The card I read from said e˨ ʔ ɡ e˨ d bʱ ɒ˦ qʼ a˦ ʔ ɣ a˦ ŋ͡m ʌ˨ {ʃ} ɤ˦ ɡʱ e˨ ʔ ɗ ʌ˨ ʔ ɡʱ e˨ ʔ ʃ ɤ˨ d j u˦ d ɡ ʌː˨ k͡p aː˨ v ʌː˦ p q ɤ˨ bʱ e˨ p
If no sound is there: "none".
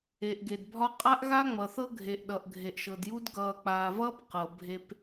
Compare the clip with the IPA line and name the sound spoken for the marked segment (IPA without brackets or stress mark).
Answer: θ